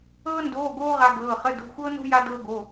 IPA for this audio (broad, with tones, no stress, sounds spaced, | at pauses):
ɤː˥ n d oː˧˥˧ ɡ oː˥ ʁ a˥ ɡ ɤː˧˥˧ χ ə˧˥˧ d o̤˧˥˧ xʷ ɤː˥ n o̤˥ j a˥ d ɤː˥ ɡ o˧˥˧